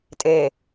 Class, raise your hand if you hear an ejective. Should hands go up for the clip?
yes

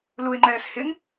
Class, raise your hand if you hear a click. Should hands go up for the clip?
yes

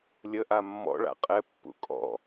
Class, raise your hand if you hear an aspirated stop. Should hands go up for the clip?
no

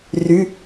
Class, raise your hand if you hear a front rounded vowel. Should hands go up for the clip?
yes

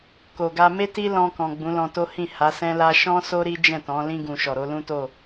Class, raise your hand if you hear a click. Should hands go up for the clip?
no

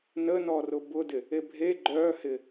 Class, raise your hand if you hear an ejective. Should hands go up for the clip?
no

